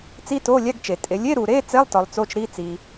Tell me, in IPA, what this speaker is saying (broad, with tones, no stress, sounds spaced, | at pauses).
t͡s i˧˥˧ t o˧˥˧ lʲ æ˧˥˧ ɡ t͡ʃ e˨ tʼ e˨ lʲ e˧˥˧ ɾ u˨ ɾ e˧˥˧ t͡s e˧˥˧ lˠ t ɒ˨ lˠ t͡s o˧˥˧ t͡ʃ ɾ i˧˥˧ t͡s i˨